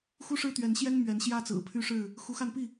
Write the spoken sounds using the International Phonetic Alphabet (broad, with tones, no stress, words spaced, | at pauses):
xu˦ʂɻ̩˦t̪ɥɛ˨˦n ɕjɛ˦n mɥɛ˨˦nɕjä˦t͡sɹ̩˨˩ pʰy˦ʂɻ̩˥˨ | xu˨˦xa˧npi˥˨